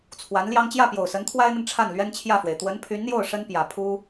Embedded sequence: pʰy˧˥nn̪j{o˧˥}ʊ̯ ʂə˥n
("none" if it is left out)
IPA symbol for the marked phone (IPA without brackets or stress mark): o˥˩